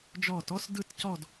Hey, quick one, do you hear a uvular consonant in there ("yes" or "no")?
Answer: no